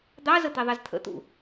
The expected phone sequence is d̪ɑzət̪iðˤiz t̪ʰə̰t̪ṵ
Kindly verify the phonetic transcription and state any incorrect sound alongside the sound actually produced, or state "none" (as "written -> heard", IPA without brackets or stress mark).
none